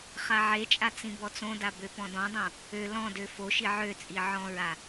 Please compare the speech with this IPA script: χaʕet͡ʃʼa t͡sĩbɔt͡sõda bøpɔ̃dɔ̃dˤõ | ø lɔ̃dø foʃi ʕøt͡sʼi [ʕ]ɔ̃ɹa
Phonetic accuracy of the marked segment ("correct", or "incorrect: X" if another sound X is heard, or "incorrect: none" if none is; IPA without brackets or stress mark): correct